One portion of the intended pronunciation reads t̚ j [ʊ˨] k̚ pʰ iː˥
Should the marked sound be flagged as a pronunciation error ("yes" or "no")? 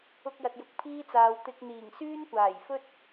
no